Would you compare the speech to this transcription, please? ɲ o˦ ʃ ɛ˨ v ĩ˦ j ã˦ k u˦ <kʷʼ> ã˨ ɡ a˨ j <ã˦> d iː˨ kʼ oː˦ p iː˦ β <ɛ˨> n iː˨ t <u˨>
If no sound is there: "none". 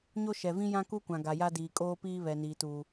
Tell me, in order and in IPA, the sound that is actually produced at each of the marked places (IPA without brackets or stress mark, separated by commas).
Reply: kʷ, a˦, ɛ˨, uː˨